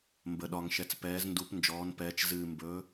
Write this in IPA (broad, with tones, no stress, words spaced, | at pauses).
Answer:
mbə˩ɗɒ˩ŋ ʃɛ˩t͡spɛː˩˧zndu˩˧p nd͡ʒɔː˩˧npɛː˩˧t͡ʃ zɨː˩mbɵ˩˧